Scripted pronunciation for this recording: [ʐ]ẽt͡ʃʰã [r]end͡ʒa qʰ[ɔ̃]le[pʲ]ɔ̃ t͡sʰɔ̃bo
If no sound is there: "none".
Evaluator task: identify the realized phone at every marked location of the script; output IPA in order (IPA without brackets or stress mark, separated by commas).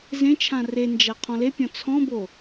z, r, ɔ̃, pʲ